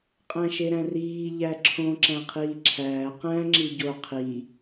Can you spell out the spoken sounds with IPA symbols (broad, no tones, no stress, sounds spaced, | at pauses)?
qʼ æ̃ ʃ e ɾ æ̃ r iː ʎ æ ǁʰ õ ǁ æ̃ qʰ iː ǁʰ æː q æ̃ ŋ͡ǁ i ɟ o qʰ i